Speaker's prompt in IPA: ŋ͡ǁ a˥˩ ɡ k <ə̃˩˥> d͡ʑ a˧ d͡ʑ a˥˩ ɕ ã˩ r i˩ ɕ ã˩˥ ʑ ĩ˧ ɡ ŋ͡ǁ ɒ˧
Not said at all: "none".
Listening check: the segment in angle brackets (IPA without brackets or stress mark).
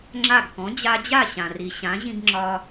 ɔ̃˩˥